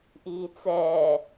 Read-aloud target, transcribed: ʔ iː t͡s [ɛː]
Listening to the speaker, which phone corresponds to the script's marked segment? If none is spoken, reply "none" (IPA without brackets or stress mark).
ɛː